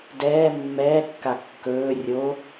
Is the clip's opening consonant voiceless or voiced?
voiced